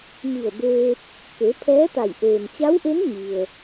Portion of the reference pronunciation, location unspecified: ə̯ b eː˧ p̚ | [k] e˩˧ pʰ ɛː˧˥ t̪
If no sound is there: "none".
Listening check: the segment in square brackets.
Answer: k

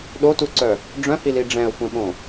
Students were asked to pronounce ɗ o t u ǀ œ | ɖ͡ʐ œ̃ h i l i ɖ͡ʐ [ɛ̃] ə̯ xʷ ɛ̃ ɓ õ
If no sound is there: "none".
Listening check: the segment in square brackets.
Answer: ɛ̃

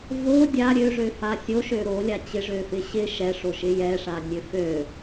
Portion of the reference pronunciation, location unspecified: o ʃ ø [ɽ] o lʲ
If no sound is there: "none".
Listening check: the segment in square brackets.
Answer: ɾ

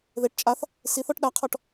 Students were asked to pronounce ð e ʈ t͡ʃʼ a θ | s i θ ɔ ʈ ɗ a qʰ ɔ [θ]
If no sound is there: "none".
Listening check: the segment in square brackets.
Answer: ʈ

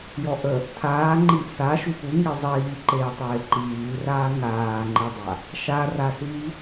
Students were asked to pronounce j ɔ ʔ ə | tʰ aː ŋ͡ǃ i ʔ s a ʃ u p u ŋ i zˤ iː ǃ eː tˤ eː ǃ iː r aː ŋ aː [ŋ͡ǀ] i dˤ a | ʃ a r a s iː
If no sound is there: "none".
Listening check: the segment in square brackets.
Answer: ŋ͡ǃ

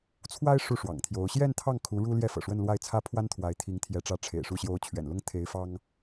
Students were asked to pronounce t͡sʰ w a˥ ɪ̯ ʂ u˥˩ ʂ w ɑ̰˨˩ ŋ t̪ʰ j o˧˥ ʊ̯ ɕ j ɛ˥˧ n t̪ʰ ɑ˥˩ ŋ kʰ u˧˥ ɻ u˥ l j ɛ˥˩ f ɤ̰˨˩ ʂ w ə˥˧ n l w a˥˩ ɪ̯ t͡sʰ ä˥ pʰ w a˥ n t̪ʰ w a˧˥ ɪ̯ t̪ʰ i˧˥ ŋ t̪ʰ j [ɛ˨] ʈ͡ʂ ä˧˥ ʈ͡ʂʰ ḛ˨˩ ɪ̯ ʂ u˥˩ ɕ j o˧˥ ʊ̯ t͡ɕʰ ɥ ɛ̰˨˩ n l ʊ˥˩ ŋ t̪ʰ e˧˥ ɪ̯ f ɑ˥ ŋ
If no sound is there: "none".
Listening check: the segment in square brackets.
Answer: ɛ˧˥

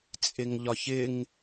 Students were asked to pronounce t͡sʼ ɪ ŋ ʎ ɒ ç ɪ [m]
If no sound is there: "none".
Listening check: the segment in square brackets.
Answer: ŋ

